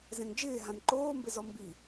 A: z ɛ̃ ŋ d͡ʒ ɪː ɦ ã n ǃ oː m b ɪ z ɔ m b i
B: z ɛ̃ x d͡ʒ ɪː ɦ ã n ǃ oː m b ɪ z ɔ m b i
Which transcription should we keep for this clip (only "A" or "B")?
A